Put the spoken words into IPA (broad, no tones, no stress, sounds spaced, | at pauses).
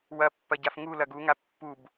w ɐ pː ɐ ɟ a f ŋ u l ɐ ɡ u ŋ a pː u b